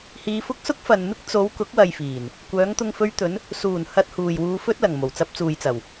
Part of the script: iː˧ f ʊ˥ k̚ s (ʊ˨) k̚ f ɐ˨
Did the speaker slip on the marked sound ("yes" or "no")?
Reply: yes